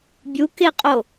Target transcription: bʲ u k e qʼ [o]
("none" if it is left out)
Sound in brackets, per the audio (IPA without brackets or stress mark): o